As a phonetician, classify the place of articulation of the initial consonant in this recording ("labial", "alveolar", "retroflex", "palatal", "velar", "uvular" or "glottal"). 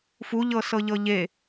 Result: labial